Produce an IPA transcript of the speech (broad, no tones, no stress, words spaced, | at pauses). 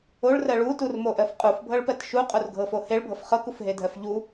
oɭrɜ ɭuturmoʔɜf qʼufbʱɤɭpɜt ʃuqʼorɡʱɤfo heɭbʱɤf χɤkufɦedʱɜf ʎu